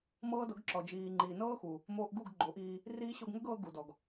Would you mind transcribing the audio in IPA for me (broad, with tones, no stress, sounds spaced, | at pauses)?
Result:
m ɤː˦ d ɤ˨˦ ɡ ǁ ɔ˨ d͡ʒ iː˨ ŋ͡ǃ iː˨ n ɤː˦ x u˨ | m oː˧ ʔ ɡ u˦˨ ɡ ɡ͡ǃ o˨˦ ʔ iː˧ | r iː˦ ɕ o˧ ɡ ŋ ə˦ ɡ ɤː˧ ɡ u˨ d ɔ˨ ɡ